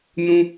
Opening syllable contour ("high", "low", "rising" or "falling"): high